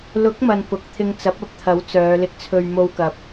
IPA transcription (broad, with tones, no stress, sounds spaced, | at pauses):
l ʊ˨˥ k̚ m ɐ˨ n p ʊ˨ k̚ t̪ʰ ɪ˧ ŋ t͡s ɐ˨˥ p̚ ɐ˨ p̚ t̪ʰ ɐ˨˥ w t͡s œː˨˧ l ɪ˧ k̚ t͡sʰ ɵ˧ ɥ m o˧ w k ɐ˨ p̚